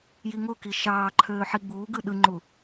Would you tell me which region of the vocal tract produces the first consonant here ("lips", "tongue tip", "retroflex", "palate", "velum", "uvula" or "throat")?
palate